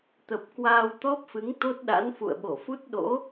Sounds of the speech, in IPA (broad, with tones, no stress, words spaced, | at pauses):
t̪ə˨˩p̚kwaː˧w t̪ɔ˦˥p̚fɨ˨˦ŋ t̪o˦˥t̚ɗa̰˧˥n fṵ˧˨ə̯ɓo˧˩fu˦˥t̚ ɗo̰˧˥